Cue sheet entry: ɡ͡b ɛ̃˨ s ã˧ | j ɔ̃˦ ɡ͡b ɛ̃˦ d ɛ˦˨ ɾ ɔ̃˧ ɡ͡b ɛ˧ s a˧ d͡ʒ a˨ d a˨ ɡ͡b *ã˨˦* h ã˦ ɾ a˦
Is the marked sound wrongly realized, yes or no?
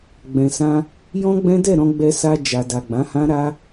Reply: no